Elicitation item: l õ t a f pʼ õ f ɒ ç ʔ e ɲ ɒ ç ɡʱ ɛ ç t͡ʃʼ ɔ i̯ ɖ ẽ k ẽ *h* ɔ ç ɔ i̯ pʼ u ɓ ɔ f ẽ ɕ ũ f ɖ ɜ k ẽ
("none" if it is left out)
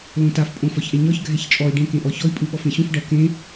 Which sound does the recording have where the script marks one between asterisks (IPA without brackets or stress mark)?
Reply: ʔ